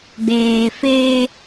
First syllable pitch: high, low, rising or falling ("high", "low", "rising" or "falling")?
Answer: low